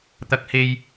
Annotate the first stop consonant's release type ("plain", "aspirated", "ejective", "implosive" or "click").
plain